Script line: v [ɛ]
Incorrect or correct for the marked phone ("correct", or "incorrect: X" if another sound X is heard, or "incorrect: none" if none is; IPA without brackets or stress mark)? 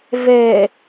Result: correct